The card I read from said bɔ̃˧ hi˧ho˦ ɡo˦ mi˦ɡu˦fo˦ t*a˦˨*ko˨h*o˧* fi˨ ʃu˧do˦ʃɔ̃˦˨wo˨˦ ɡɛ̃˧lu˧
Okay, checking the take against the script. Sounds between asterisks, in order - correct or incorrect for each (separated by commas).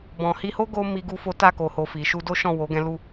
correct, incorrect